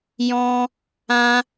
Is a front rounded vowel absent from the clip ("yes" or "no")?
yes